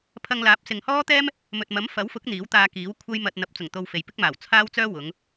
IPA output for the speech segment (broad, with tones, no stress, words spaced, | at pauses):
pʰɐ˧ŋlaː˨˥p̚ sɪ˨ŋ hɔː˥t̪ɛː˥m | mɵ˨t̚mɐ˨˥m fɐ˨˥wfʊ˨˥k̚ n̪iː˨˥wt̪aː˧kiː˨˥wkʷʰɐ˥j mɐ˧t̚ n̪ɐ˨˥p̚t͡sʊ˨˩ŋ t̪o˧wfe˨jpɪ˥k̚maː˨˩w t͡sʰaː˥wt͡sœː˥ wʊ˨˧ŋ